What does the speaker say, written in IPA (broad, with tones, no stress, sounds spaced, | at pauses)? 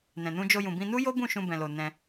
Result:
n ɛ̃˨ n ũ˧ d͡ʒ o˧ j ũ˨ b ĩ˧ n u˦ j o˦ b ũ˦˨ ʃ ũ˧ b ɛ̃˨ l o˨ n ɛ̃˧